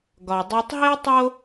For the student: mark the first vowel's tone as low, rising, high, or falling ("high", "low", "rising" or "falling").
low